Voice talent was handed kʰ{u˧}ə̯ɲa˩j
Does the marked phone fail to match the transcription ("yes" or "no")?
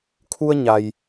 no